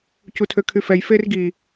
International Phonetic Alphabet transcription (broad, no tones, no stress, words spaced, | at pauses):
cutʰøkʰyfɛj ferɡi